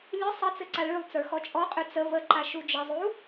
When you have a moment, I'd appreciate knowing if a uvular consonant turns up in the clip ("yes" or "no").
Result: yes